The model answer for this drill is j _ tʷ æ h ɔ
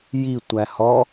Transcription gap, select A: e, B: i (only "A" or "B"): B